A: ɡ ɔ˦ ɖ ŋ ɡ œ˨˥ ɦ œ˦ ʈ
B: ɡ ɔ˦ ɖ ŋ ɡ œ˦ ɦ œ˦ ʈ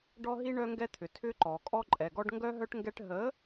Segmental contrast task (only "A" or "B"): B